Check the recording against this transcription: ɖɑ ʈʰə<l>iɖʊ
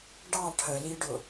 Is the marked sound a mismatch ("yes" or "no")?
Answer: no